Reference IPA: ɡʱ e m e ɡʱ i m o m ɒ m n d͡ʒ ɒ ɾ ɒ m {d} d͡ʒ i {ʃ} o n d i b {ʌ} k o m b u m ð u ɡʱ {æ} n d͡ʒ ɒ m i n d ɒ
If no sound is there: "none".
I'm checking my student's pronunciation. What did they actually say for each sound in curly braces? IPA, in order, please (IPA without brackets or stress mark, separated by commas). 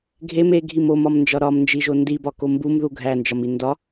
n, ʒ, ɒ, æ